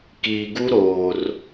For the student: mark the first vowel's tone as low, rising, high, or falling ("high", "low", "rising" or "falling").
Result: low